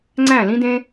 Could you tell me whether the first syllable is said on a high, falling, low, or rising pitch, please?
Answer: falling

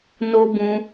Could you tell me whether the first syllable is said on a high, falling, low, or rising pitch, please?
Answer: high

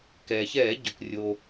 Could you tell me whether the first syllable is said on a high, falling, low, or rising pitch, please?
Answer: low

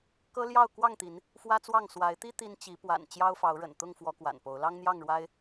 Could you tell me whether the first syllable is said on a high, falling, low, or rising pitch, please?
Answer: high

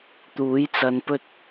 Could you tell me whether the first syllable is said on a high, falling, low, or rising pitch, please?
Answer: rising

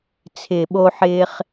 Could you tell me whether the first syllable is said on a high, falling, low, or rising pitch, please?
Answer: low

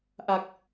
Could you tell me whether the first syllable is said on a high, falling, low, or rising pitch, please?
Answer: low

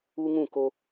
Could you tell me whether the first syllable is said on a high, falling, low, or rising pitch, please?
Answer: high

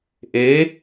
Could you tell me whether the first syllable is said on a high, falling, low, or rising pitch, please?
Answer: rising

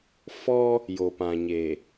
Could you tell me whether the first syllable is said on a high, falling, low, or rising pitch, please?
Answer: high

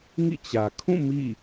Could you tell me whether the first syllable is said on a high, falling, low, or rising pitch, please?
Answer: falling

